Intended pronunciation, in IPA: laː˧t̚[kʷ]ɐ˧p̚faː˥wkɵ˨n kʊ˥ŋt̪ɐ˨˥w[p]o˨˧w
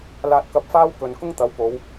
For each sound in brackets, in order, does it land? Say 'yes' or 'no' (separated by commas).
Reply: no, yes